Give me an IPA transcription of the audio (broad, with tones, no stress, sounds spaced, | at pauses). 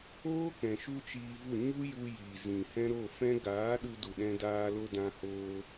oː˦ k ɛ̃˨ ʃ u˦ t͡ʃ iː˧ v u˦˨ ɲ u˦ j u˧ j iː˨ z ĩ˨ h ɛ̃˧ ɾ o˦˨ f ɛ̃˦ ɡ aː˨˦ ɗ u˧ d u˨ ɗ ɛ̃˧ d aː˧ l o˧ d ã˧ h oː˧